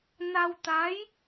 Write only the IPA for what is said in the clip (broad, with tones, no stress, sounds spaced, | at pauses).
n a˧ w t̪ a˧˥ j